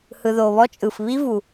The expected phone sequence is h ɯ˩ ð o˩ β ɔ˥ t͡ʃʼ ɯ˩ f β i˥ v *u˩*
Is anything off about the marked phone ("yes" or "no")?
no